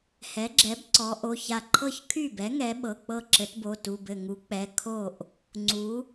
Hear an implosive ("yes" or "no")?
yes